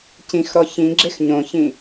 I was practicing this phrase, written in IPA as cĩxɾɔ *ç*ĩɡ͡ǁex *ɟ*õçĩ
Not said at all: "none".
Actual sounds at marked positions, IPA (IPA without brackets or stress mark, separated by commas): ç, ɲ